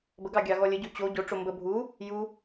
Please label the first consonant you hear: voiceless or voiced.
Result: voiced